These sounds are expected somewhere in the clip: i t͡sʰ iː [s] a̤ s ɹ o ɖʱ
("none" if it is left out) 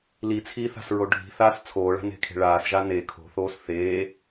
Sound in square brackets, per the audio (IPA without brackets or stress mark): θ